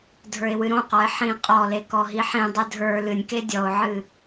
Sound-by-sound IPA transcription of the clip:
dʱ ə˞ ɪ̯ w ɨ ɾ õ q ɔ ɪ̯ ħ ĩ qʼ ɔ l e k ɔ ɦ i ħ ĩ dˤ ɨ dʱ ə˞ l ɨ nʲ k e dʲ ɔ ʊ̯ ʕ ɨ

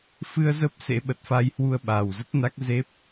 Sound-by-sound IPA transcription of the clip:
f ɨ˧ ə̯ z ə˦˥ p̚ s ḛ˧˥ ɓ ə˨˩ t̚ f a˧ j h w u˧ ə̯ ɓ aː˨˩ w z ə˦˥ t̚ n a˦˥ k̚ z e˦˥ p̚

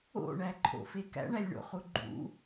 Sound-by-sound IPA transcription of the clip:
o̰ ɳ æ ǃʰ o̰ f e k æ̰ ɳ æ lʲ ɳ o̰ χ u ɡ͡ǃ ṵ

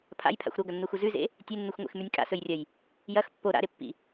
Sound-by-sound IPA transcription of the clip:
pʰ a̰ j pʰ a̰ xʷ ɾ o ɡ ɐ nː u x u z ʉ z ḛ | tʲ e nː u xʷ ŋʷ ḛ x m ʉ nʲ kʼ a̰ s ɵ j rʲ ɐ j | j ɐ x pː o ɾ a̰ ɾ e pː ḭ

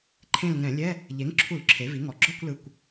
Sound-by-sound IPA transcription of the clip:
ǃʰ ẽ˦˨ l ŋ ɛ̃˧˩˧ lʲ ɛ˧˥˧ | ʎ e˩˥ ŋ ǁʰ u˧˩˧ l ǁʰ e˩˥ v i˩˥ ŋ ɔ˨˩ ɡ͡ǁ ɔ˦˨ kʷ l ɯ˨˩ kʷ

